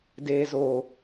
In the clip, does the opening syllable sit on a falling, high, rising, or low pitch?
low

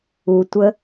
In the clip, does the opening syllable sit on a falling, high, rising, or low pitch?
low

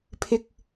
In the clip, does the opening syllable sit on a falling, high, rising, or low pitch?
high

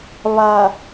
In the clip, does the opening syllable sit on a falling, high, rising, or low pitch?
low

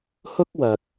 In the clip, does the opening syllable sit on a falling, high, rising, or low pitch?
high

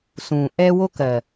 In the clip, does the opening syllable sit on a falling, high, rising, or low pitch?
low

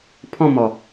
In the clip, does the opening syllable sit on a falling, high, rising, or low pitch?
falling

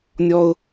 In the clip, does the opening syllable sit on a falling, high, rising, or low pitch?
high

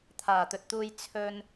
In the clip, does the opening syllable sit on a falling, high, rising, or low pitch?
low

